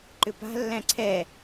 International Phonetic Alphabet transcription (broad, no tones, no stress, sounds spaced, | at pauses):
ǃ ʏ p a̤ lː æ̃ ǀʰ ɛ